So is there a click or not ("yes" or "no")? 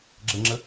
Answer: yes